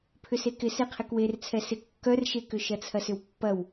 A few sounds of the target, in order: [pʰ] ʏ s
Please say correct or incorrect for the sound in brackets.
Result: correct